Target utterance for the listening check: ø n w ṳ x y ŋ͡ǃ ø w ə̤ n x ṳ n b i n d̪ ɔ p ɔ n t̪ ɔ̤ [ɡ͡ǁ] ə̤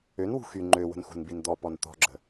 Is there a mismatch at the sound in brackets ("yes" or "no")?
no